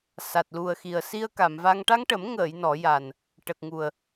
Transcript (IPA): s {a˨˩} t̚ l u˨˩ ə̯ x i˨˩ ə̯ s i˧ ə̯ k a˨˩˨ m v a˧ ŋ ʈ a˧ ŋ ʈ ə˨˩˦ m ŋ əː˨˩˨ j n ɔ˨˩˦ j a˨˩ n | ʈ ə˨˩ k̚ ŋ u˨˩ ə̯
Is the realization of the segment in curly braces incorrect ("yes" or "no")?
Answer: no